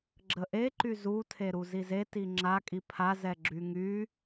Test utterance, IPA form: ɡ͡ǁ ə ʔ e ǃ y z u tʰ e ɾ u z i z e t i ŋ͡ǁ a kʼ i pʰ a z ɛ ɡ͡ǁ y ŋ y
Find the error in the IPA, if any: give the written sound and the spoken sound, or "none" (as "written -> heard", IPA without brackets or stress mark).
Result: none